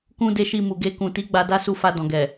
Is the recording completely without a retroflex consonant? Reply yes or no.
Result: yes